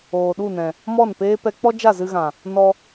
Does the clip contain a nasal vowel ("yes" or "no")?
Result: yes